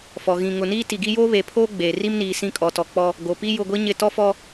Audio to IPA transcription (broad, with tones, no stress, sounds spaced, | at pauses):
f ɔ˨ ɣ ĩ˨ ŋ ʊ˨ n iː˦ t i˨ ɡ i˦ j oː˦ β eː˨ pʰ oː˦ ɡ͡b eː˨ r i˦ m n iː˨ s ĩ˦˨ kʼ ɔ˨ t ɔ˨ k͡p ɔ˦ | ɡ o˨ p i˦ j ʊ˦˨ ɡʷ i˦ ɲ ɪ˦˨ t ɔ˦ f ɔ˦